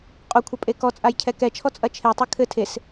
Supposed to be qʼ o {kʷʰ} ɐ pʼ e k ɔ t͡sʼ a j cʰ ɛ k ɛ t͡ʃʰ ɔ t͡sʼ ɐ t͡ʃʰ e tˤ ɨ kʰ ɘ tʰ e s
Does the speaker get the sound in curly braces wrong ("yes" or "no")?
no